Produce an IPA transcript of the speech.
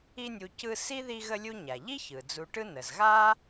i˦ nʲ u˨ c ɯ˦ s i˥ ð i˦ ɣ ə˦ lʲ u˦ ɲ a˩ ʎ i˥ ç ɯ˩ d͡z u˨ ʈ ɯ˦ n ə˩ z ɣ a˥

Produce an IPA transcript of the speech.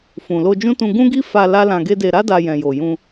f ũ˨ l o˧ d͡ʒ ũ˦ t ũ˧ ɡ ũ˦ ɡ i˦ f a˧ l a˦ l ã˧ ɡ e˦ d e˧ ɾ a˦ d a˧ j ɛ̃˨ j o˨ j ũ˧

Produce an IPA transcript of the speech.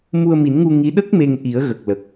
m u˧ ə̯ m i˨˩˦ n ŋ u˧ ŋ i˧˥ ɗ ə˦˥ k̚ m e˧ ŋ ʔ i˨˩˦ ə̯ ɣ ə˨˩ k̚ l ə˨˩ k̚

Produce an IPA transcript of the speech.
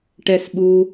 ʈ ɛ˦˨ s ɓ u˦

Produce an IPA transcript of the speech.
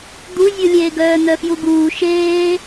d̪ u zʲ u lʲ eː ɡ œː n̪ œ f j u ɡ uː ʃ eː

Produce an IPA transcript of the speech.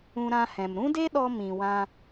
ũ˧ ɾ ã˧ h ɛ̃˨ m ɾ ũ˦ d e˦ ɗ ɔ˧ m ĩ˨ w ã˧

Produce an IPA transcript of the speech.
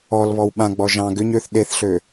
ɔ l β ɔ w ɓ ã ɡ͡b ɔ ʒ ɑ̃ ɡ ʏ ɲ ø θ ɗ e θ ɬ ø

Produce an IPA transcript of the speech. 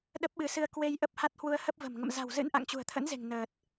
ɗ ə˦˥ p̚ ɓ ɨ˨˦ s ɨ˧ ə̯ k w e˧ j ʔ ə˦˥ p̚ h a˦˥ t̚ h w u˧ ə̯ h ə˦˥ p̚ v ə̤˨˩ m ŋ ə̰˧˨ m z a̤˨˩ w z ɨ̰˧˥ n ʔ a̰˧˨ ŋ t͡ɕ ṳ˨˩ ə̯ t̪ʰ ə̰˧˥ n z e̤˨˩ ŋ n əː˨˩ t̚

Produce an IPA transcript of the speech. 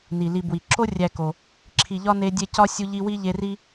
n i˩ l i˨ b w i˩ ǁ o˥ rʲ æ˨ k o˩ | ǁʰ i˨ ʎ ɒ˦ n e˦ dʲ e˦ c ɒ˥ sʲ u˦ ʎ i˦ w i˥ ʎ e˦ r i˥

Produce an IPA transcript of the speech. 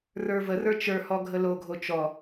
r ə˞ v ə r ə˞ t͡ʃ ə˞ h ɔ ɡʱ ə l o ɡʱ o t͡ʃ ɔ

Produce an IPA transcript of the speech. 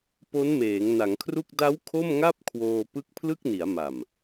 p o˦˥ n m eː˩˦ ŋ n a˩˦ ŋ kʰ r u˥˩ k̚ d a˦˥ w kʰ o˥˩ m ŋ a˥˩ p̚ kʰ w oː˧ p ɯ˦˥ k̚ pʰ l ɯ˥˩ k̚ n i˩˦ a̯ m a˨˩ m

